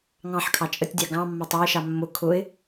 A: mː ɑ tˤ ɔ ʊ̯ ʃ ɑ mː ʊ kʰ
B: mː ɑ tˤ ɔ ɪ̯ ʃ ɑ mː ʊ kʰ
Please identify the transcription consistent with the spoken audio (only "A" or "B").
B